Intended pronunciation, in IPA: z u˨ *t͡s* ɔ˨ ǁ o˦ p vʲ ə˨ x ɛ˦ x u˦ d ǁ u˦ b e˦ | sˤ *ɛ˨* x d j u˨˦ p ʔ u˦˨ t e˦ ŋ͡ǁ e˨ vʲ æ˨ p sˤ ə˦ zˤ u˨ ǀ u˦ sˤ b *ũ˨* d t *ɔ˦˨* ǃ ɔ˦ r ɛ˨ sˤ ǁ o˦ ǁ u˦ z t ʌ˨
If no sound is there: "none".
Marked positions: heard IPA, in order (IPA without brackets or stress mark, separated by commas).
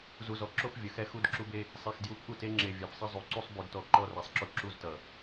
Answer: z, e˨, u˨, ɔ˨